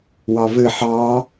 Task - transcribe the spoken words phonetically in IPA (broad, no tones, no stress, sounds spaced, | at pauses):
w ɑ v ɘ ħ ɑ